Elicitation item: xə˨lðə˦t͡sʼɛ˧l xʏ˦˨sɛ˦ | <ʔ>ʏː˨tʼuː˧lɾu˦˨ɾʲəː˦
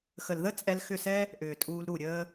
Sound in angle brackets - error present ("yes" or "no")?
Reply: no